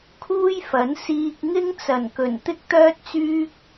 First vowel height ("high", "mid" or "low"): high